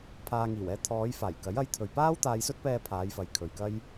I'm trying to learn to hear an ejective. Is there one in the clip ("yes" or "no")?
no